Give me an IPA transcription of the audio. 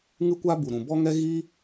ŋ ɨ˦ kʷ a˦ b u˨ ɾ ũ˨ b ɔ˦ ŋ ɛ˦ ɣ i˦

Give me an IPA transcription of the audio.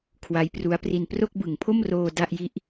kʰ w a˦˥ j p r u˦˥ a̯ p r i˧ n p r o˥˩ k̚ b ɯ˨˩ ŋ pʰ o˥˩ m r oː˧ d a˥˩ ʔ j i˥˩ ʔ

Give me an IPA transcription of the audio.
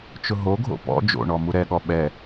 t͡ʃ ʊ ɦ o ɡʱ o̰ p ɔ̰ d͡ʒ o̰ ɳ ɔ m u ɾ ɛ ɠ ɔ ɓ ɛ

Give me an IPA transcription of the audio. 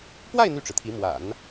p w a˥˧ ɪ̯ n̪ y˥˩ ʈ͡ʂ ɻ̩˩ t̪ʰ i˧˥ m w a̰˨˩˦ n

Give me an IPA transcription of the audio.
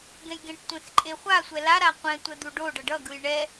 ɡ ɛ̃ j ɡ ẽ ʈ tʷ ɛ̃ x ǃʼ e χʷ a sʷ ɛ l a ɾ a qʷ ɛ̃ tʷ ɛ d̪ u ɖ o ɖ ʌ ɖ ʌ ɡ ɯ j ɳ ɛ

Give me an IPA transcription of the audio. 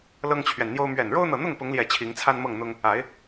l ɤ˦ ŋ t͡ɕʰ ɥ ɛ˨ n n̪ j o˦ ʊ̯ m ɥ ɛ˨˩ n ɻ o˦ ʊ̯ n̪ ɤ˨ n̪ ʊ˥˨ ŋ p ʊ˨˦ ŋ l j ɛ˨˩ t͡ɕʰ i˨˦ ŋ t͡sʰ a˦ n m ɤ˥˨ ŋ n̪ ʊ˦ ŋ | a˨˦ ɪ̯

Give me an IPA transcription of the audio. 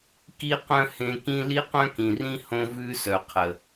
k i˥ q œ̃˥ h ẽ˦ k ĩ˥ l i˥ q œ̃˥ k ĩ˨ r ĩ˥ h õ˥ v ʉ˥ s œ˨ qʰ ə˩

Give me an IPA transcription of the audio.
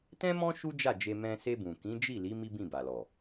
t ɛ̃˦ m ɔ̃˦ ʃ u˦ d͡ʒ a˦˨ d͡ʒ e˧ m ɛ̃˧ s e˧ b ũ˨ k ĩ˨˦ d͡ʒ i˦˨ l i˨˦ m i˦ b ĩ˦˨ b a˨ l ɔ˨

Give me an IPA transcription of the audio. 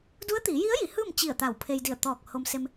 d u˧˥ ə̯ t̪ iː˩˧ j i˧˥ ə̯ j i˩˧ h ɯː˥˨ m t͡ɕ i˧˩ ə̯ t̪ a˧˩ w pʰ e˧ j d i˧˩ ə̯ t̪ ɔː˧˩ k̚ h o˧ m s e˧ m

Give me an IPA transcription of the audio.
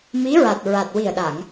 m i˧˥ ɹ a˨˩ t̚ ɹ a˨˩ t̚ w i˨˩ ə̯ ɗ a˨˩˨ ŋ

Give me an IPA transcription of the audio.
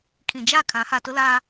kʰ ĩ˨ d͡ʒ a˦˨ kʰ ã˨˦ h a˨ t ʊ˦ l aː˦

